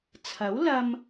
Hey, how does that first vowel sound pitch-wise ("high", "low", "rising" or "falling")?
rising